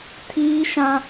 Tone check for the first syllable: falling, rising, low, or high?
high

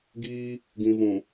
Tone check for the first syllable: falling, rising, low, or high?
high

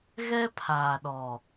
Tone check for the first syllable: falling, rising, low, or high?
high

